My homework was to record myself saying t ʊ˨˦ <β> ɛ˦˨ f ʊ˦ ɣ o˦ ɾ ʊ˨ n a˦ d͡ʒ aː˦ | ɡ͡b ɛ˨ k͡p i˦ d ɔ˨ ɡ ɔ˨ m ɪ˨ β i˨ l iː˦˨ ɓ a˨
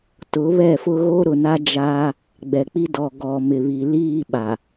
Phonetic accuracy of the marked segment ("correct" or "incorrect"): correct